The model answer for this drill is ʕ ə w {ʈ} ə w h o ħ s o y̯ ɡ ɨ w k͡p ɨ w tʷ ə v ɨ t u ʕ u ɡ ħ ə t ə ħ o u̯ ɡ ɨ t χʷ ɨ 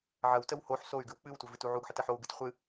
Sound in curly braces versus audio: incorrect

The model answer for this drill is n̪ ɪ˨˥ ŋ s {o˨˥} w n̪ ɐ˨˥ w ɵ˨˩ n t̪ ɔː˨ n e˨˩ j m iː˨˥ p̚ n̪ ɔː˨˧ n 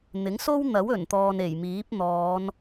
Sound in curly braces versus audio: incorrect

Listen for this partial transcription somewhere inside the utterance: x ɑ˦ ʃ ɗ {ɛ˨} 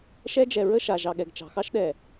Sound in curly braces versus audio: correct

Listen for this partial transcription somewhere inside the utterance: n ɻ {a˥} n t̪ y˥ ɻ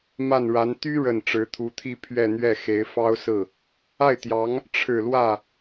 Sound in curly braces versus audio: incorrect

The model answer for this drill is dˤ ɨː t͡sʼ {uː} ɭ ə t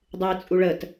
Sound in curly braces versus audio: incorrect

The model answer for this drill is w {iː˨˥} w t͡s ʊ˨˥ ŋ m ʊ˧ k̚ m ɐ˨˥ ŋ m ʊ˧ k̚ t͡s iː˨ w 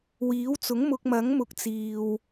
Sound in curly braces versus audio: correct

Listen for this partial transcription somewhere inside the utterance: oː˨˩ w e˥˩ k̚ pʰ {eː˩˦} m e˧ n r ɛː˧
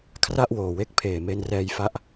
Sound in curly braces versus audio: incorrect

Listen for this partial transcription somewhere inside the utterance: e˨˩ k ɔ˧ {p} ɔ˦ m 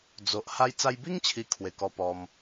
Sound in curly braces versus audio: correct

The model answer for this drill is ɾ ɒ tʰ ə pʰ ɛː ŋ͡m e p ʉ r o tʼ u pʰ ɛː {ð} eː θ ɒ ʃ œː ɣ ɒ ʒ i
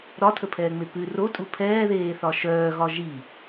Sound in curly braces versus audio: correct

